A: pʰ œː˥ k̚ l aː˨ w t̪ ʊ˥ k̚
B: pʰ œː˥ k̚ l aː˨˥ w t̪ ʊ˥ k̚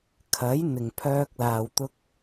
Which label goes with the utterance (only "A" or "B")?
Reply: A